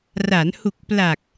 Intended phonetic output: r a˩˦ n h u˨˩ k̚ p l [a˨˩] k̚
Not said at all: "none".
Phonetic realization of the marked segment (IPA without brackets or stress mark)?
a˨˩